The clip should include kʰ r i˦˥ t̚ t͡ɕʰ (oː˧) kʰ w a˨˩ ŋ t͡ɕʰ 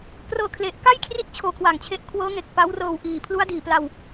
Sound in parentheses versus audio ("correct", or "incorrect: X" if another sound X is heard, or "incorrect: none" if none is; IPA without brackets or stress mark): correct